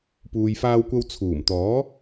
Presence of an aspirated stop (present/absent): present